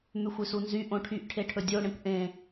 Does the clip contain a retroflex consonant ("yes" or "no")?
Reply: yes